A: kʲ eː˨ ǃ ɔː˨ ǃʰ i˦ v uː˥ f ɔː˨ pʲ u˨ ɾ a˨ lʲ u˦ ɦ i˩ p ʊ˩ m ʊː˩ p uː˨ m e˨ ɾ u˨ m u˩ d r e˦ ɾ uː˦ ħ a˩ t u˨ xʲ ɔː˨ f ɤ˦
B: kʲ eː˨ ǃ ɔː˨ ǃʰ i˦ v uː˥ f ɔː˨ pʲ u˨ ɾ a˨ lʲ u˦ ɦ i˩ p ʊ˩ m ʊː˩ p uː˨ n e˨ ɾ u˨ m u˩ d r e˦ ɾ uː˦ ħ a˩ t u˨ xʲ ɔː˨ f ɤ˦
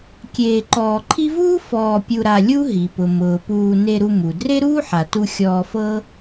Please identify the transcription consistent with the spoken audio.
B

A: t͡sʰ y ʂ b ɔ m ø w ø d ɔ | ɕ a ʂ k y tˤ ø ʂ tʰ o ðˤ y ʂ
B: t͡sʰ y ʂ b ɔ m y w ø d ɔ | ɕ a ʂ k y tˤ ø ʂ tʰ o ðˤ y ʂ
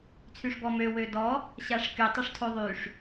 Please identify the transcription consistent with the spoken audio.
A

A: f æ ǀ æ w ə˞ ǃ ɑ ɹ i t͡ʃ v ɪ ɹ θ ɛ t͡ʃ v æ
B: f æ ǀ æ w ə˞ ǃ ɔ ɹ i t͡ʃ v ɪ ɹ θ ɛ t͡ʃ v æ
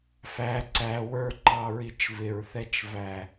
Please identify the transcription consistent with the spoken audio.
A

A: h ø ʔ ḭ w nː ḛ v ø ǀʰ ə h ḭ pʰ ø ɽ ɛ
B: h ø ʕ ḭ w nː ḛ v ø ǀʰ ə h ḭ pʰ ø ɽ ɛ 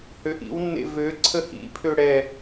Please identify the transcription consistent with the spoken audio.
A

